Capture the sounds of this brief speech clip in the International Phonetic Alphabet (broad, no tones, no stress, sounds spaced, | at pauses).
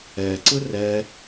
ɛ ǀ ɯ r ɛ